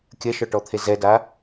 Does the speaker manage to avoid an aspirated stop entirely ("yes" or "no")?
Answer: no